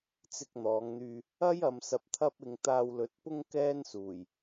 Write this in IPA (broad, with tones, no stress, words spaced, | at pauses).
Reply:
t͡sɪ˧k̚n̪ɔː˨˧ŋn̪yː˧ | ɐ˥j ɐ˨˧msɐ˧p̚t̪ʰɐ˥p̚ɪ˧ŋ t̪aː˧wlɵ˨˥t̚pʊ˥ŋ kɛː˥nsuː˨˩j